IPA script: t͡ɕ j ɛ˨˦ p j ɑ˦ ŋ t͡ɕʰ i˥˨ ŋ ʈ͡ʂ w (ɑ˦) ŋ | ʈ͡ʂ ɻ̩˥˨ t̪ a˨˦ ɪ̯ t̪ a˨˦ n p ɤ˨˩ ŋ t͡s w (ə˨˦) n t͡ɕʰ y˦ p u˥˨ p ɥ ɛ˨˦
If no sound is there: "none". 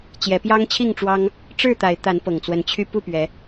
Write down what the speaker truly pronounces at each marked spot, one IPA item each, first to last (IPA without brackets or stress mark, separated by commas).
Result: ɑ˦, ə˨˦